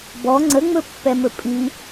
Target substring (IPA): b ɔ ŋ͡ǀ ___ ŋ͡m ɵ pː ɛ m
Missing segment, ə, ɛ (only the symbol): ə